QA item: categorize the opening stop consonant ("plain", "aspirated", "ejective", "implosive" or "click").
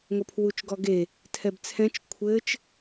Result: aspirated